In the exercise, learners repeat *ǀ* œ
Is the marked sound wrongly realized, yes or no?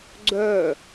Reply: yes